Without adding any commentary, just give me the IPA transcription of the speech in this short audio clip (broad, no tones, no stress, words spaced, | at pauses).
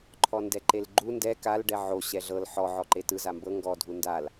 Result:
ǃʰɔndɛǃelɡ͡ǃu ndɛ kal ɖɛʕo ɕɛɮɤl ħɔ ʕɔǃetɯ zambɤ ŋɡɔ dʱundal